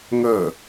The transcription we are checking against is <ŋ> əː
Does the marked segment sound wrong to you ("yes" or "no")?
no